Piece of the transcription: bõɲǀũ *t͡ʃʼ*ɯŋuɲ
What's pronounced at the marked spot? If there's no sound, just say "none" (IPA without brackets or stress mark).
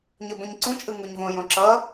t͡ʃʼ